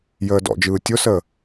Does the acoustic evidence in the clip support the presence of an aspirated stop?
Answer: no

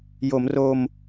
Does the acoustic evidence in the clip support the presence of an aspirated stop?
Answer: no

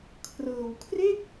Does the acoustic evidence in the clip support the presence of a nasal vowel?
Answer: no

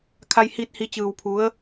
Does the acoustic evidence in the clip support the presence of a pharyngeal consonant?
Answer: no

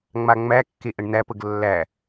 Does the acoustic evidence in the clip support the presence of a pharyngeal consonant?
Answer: no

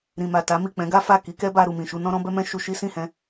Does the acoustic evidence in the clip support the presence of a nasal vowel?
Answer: yes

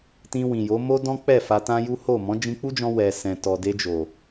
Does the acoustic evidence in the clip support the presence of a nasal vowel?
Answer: yes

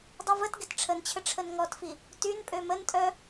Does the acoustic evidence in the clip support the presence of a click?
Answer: no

